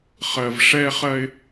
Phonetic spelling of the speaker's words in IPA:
χ ɜ˨ v ʂ ɛ˦ χ ɜ˦ ɪ̯

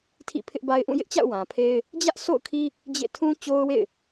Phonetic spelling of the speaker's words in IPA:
tʰ ḭ˦˨ pʰ ɪ˦ ʔ b a˦ ɪ̯ ʔ ũ˦˨ j ɪ˦ ʔ t͡ɕ a̰˦˨ ʊ̯ w ã˨ pʰ e˦ ɪ̯ | d͡ʑ ä˦ ʔ sʰ o̰˦˨ ʊ̯ kʰ i˦ | d͡ʑ ḛ˦˨ tʰ ũ˦ t͡ɕ o˦ ʊ̯ w ḛ˦˨ ɪ̯

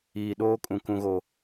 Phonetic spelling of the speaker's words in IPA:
iː˨ ɗ oː˦ kʼ ũ˨ k ũ˨ ɣ o˨

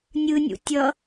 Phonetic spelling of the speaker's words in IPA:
nʲ ɯ nʲ ṵ tʲ ʌ

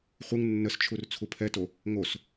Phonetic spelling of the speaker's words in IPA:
χʷ ɨ ŋ nː ə s t͡ʃʰ u r t͡sʰ u pʰ ɛ t o | ŋ o s

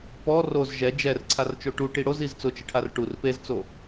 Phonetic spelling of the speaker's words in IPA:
p ɔ r o z ʒ ɛ d͡ʒ ɛ r ǀʰ a r t͡ʃ o ʈ u ʈ i ɽ o z i z t͡s ʊ t͡ʃ ɪ ʈʰ a r ʈ u r p e z t͡s o

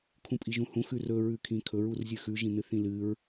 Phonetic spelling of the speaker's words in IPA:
kʰ ũ pʼ i ʒ ũ h ũ x ʉ r ɵ ɹ ʉ kʰ ĩ kʰ ɵ ɹ u r zʲ ɨ x ʉ ʒ ĩ n ɨ θ ĩ l ɨ ɹ

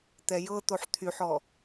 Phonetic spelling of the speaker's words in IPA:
t̪ ɛ j ɤ t̪ o ħ t̪ʰ y ħ ɔ

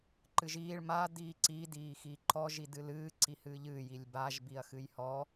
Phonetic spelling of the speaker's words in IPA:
ǃ ɨ ʒ iː ɭ m a d iː ǀ i d iː x i ǃ ɔ ʒ i d ɨ l ɨː ǀ i h ɨː ʎ ɨː j i lʲ b a ʒ b i ɐ̯ x ɨ j h ɔ

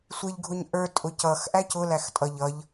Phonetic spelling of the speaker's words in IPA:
sʷ ɪ ʎ ɡʱ ʊ ɲ ʔ ə˞ tʼ ʊ c ʌ x ʔ æ c ʊ l æ x tʼ ʌ ʎ ʌ ʎ

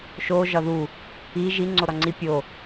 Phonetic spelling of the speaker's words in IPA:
ʃ o ʒ ɒ ð u | i ʒ i ŋ͡ǀ o ɾ ɒ ŋ͡ǀ i pʲ o

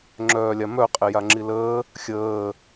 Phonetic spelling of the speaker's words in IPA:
ŋ͡ǁ œː lʲ a m œ qʼ e j a ŋ͡ǁ i l əː | xʲ əː

